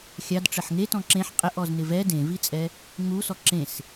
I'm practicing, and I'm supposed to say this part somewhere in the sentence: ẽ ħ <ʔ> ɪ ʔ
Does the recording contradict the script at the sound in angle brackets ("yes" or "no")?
yes